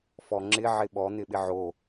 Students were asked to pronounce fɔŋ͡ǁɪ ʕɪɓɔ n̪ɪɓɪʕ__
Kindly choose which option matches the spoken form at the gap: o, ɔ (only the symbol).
o